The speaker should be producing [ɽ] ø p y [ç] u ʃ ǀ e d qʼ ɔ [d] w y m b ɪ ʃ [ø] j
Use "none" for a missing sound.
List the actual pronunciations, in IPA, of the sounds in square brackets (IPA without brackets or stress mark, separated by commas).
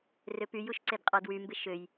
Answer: r, j, d, ø